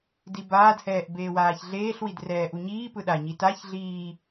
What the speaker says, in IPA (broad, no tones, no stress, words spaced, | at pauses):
dibaːdhɛːʔ beːwaːçɮeːɬwid rɛːʔuɲiːpɯ ɗaɲi taç ɮiː